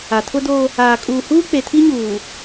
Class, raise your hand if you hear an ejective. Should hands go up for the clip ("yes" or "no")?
yes